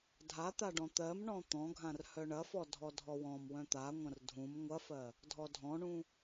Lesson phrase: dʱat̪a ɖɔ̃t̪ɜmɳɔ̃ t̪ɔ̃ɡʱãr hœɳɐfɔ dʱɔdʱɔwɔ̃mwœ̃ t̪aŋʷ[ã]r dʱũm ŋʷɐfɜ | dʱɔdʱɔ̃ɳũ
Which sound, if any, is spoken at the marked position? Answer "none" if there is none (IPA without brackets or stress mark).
ɐ̃